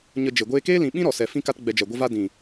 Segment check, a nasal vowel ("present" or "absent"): present